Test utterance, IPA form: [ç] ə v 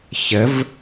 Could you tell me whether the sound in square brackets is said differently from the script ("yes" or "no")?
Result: no